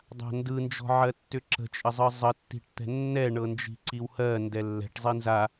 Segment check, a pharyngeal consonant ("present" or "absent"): present